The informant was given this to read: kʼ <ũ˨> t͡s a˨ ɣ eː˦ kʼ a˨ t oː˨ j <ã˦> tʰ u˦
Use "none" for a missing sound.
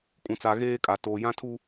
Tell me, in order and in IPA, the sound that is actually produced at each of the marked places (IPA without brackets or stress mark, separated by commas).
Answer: ũ˨, ã˦